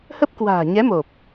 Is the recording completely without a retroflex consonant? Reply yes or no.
yes